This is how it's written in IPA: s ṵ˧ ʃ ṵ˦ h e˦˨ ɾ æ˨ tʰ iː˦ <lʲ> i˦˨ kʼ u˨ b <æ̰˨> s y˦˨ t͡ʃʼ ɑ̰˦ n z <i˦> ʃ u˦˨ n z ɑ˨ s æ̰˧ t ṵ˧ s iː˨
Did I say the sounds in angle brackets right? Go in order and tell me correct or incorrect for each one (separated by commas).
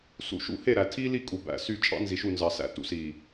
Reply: incorrect, incorrect, incorrect